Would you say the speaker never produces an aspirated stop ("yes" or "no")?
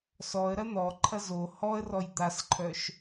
no